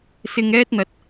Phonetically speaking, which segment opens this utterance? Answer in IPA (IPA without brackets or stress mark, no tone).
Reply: s